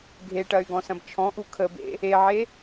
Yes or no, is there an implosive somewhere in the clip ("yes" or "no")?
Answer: no